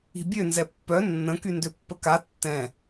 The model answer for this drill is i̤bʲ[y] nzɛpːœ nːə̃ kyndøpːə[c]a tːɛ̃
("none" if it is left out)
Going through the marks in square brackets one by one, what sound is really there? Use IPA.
ø, k

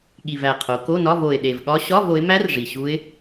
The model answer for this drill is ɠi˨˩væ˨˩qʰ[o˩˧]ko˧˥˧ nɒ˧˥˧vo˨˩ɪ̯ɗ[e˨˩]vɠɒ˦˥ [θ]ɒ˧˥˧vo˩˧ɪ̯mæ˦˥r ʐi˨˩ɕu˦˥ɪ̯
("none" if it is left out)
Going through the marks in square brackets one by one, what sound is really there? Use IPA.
o˩˧, e˨˩, ɕ

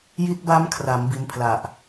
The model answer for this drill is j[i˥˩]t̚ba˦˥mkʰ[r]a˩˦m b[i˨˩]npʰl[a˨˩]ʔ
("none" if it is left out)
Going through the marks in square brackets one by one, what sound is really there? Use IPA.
i˦˥, r, i˧, a˨˩

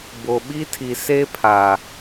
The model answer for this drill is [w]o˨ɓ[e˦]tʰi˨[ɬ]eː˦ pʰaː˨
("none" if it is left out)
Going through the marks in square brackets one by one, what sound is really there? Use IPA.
b, i˦, s

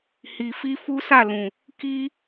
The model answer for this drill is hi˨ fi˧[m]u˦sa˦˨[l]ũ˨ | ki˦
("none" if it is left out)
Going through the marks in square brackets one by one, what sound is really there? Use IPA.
f, l

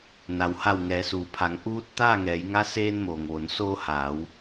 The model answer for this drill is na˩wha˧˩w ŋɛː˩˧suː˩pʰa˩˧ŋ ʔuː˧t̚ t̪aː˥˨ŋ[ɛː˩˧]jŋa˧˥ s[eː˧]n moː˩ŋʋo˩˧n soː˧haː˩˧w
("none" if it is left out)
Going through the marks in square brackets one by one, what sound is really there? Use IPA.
ɛː˩˧, eː˧

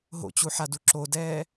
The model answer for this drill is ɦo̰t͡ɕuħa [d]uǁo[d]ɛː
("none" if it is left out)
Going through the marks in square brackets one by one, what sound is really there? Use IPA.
d, d

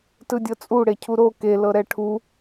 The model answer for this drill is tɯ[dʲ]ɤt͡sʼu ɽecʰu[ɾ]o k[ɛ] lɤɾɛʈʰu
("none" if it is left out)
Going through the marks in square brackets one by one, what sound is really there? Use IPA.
dʲ, ɾ, e

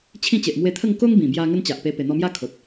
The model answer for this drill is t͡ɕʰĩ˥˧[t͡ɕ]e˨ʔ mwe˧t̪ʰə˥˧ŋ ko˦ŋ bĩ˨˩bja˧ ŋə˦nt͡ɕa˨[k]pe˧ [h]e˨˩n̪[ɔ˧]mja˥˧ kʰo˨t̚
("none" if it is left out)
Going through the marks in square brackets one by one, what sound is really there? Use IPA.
t͡ɕ, ʔ, p, ɔ˧

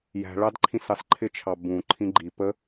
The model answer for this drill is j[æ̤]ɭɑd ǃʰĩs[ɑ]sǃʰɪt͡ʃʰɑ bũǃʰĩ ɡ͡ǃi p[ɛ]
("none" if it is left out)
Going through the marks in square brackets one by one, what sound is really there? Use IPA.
æ̤, ɑ, ə

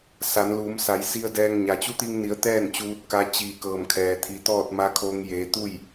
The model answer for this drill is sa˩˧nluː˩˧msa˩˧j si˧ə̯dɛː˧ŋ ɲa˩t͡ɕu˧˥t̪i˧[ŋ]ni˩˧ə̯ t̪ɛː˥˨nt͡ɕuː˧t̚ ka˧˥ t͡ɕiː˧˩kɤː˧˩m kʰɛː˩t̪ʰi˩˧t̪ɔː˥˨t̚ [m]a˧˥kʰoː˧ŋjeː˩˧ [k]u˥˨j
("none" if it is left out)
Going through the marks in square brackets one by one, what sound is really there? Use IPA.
ŋ, m, t̪

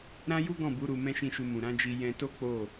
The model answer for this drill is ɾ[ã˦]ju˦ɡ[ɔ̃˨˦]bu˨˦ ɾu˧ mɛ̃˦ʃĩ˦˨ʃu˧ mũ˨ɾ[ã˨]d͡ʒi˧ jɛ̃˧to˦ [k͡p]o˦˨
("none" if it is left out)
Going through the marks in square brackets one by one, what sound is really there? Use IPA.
ã˦, ɔ̃˦˨, ã˨˦, k͡p

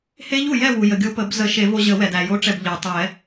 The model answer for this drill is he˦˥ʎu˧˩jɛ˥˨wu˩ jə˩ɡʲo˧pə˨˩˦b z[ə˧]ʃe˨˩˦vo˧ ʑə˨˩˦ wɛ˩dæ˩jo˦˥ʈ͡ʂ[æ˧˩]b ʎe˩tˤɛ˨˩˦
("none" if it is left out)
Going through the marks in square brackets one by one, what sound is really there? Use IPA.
ə˨˩˦, ɛ˧˩

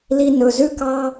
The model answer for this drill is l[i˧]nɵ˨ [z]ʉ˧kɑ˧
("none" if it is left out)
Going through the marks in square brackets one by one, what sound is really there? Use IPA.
i˧, z

